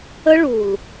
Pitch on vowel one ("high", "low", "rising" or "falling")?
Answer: high